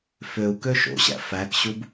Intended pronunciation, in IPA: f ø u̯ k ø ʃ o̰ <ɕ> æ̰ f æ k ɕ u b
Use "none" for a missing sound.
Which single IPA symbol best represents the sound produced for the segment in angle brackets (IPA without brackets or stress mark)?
ɕ